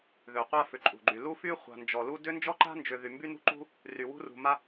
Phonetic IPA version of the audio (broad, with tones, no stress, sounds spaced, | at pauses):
ð ø˨ qʷ a˦ f ʏ˨ ǃʼ ṳ˨ ɡ͡ǃ y˨ l u˦ f y˦ χʷ a̤˨ n d͡ʒ ɔ˨ l u˦ d ʏ˦ n d͡ʒ ɔ˦ ǃ a̤˦ n d͡ʒ ʏ˨ ð y˨ m b y˦ n ṳ˦ ǃ ṳ˦ | r y˨ w ṳ˦ r ṳ˨ m a˦